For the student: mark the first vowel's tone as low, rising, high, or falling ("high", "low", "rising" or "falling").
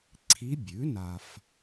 rising